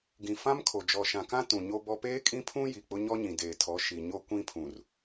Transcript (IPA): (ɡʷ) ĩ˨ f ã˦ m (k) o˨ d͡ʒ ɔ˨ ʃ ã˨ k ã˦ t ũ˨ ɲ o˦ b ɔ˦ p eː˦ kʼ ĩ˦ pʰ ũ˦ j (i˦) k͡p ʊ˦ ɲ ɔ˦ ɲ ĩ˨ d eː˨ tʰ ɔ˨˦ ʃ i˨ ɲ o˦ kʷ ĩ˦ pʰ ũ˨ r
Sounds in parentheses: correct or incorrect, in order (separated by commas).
incorrect, incorrect, incorrect